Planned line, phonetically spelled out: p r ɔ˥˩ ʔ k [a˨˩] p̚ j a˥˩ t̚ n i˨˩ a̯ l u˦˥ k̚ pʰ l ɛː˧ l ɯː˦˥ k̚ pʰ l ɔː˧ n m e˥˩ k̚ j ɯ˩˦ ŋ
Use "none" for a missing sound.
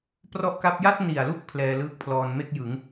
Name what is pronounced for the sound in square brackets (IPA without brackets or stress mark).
a˥˩